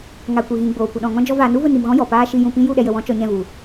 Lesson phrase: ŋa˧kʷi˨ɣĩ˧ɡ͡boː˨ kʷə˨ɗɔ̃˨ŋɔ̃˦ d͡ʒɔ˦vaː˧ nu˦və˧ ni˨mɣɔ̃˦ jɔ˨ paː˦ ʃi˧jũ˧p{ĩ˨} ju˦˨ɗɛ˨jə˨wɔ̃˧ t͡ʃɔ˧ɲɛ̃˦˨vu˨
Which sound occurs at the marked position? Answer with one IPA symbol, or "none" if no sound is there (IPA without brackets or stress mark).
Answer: ĩ˦